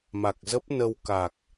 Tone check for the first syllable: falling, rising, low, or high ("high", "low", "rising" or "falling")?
low